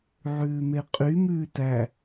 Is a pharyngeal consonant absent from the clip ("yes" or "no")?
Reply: no